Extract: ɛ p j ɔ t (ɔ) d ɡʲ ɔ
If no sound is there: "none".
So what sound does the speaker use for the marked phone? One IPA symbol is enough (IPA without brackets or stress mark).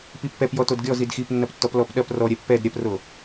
o